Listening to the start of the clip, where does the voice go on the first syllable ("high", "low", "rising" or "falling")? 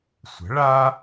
rising